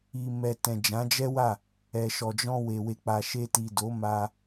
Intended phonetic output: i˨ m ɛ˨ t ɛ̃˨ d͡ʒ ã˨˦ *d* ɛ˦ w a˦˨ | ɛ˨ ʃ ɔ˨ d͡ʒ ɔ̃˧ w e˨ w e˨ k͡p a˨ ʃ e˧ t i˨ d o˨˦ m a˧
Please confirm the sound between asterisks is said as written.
no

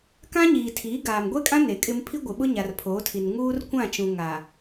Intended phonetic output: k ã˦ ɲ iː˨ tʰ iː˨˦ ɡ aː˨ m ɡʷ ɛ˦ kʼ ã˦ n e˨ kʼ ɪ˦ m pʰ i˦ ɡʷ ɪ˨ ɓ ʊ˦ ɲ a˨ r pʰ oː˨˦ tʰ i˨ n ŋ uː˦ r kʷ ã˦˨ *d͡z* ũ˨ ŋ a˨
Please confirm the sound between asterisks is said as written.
no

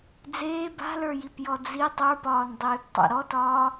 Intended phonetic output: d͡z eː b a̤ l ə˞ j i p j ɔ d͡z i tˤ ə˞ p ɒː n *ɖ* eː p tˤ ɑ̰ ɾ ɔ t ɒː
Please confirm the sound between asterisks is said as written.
no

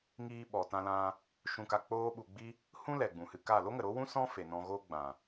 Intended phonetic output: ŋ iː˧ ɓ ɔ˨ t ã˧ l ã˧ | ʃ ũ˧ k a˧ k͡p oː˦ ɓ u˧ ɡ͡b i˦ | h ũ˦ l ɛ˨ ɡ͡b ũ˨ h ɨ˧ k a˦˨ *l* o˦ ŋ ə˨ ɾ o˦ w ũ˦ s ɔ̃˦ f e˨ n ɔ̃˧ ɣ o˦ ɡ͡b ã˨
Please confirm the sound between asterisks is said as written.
yes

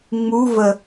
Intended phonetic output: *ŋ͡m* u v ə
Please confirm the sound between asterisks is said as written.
yes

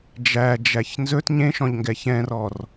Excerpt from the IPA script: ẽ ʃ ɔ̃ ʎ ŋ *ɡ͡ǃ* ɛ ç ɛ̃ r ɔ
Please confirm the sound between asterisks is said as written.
no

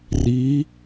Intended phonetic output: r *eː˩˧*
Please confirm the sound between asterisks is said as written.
no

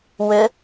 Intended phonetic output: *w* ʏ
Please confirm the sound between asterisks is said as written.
yes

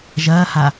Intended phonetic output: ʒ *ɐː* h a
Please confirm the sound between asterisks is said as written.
yes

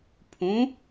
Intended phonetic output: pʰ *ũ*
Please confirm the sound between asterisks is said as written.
yes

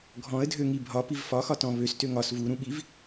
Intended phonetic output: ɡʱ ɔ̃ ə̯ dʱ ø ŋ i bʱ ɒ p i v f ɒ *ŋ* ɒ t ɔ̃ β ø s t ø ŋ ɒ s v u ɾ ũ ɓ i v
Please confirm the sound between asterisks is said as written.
no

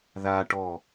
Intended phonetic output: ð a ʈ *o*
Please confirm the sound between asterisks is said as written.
no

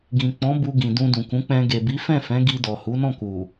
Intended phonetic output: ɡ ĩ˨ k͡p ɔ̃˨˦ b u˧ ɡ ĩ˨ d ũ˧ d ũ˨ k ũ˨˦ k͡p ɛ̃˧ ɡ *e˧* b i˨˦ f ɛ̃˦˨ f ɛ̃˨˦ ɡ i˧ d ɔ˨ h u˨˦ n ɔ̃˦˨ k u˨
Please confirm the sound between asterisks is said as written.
no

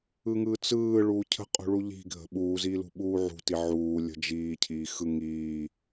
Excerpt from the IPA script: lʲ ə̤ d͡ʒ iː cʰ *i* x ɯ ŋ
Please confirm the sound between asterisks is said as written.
no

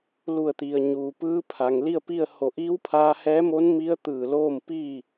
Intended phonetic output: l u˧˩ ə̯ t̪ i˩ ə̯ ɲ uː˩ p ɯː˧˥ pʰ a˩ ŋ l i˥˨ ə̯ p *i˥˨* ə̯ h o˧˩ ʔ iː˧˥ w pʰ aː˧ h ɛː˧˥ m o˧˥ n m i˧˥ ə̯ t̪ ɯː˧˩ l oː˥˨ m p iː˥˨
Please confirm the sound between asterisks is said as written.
yes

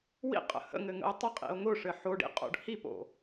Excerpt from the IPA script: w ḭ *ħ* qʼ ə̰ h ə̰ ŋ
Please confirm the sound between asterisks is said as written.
no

